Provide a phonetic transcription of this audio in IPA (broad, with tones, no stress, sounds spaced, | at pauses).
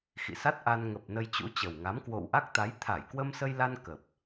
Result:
x ḭ˧˨ s a˦˥ t̚ ʔ a˧ n ŋ ə˨˩ p̚ n ə˧ j t͡ɕ ṵ˧˥ t͡ɕ ə˨˩ w ŋ a˨˦ m k w o̰˧˨ w ʔ a˦˥ k̚ t̪ a˨˦ j t̪ʰ a˧˩ j k w ə˧ m s ə˧ j l a˧ n k ə˨˩ p̚